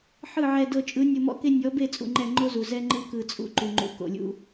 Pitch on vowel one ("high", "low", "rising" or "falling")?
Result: falling